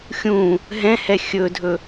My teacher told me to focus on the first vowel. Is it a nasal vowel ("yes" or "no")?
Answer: yes